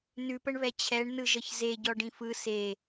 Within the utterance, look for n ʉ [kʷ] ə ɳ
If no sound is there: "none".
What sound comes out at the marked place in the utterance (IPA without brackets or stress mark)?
p